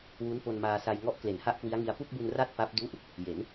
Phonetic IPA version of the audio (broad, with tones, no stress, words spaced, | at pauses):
wu˦˥npo˧nmaː˧ sa˧j ŋɔ˦˥ʔkle˨˩n ha˥˩ʔkwi˦˥a̯ŋi˧a̯ pu˥˩k̚bu˧n ra˥˩t̚pa˦˥p̚ du˦˥ʔ | je˩˦n